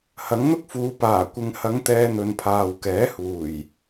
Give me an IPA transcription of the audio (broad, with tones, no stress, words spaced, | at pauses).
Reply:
hɐ˨˥ŋn̪ʊ˥k̚fuː˨˧ paː˨˩ kʷɪ˨ŋhɐ˨˧ŋ t̪ɛː˧n̪ɵ˨npʰaː˨w kɛː˨˥huː˨˩j